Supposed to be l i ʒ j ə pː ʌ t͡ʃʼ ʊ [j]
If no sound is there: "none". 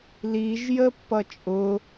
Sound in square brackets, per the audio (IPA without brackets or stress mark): none